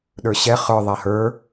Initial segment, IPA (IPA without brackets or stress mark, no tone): ɗ